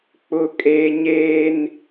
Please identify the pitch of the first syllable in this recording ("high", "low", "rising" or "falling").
low